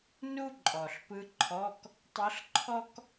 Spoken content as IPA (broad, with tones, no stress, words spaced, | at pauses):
nu˥ǃʼɔ˨˩ɬ pɯ˧˥ǃʰɔ˧˥˧k | tˤɤ˧˥ɬǃʰɔ˥k